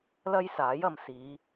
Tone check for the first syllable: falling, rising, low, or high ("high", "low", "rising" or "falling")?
high